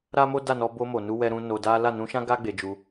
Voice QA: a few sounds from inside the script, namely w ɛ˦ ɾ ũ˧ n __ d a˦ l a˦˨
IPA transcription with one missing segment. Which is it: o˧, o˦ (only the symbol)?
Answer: o˧